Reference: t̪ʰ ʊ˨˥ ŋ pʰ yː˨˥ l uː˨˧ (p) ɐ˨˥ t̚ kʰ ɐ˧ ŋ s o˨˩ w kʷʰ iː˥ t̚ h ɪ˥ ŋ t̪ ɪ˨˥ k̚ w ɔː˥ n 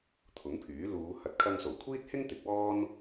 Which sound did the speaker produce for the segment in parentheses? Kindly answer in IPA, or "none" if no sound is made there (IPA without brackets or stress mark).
h